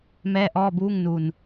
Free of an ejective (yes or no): yes